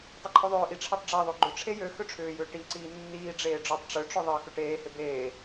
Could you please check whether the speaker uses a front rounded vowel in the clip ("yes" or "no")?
yes